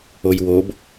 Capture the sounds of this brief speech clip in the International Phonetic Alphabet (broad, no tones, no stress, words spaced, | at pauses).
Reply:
ojwob